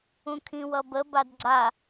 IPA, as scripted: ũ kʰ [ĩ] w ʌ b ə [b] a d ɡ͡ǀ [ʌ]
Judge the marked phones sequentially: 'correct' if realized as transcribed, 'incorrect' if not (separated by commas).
correct, correct, incorrect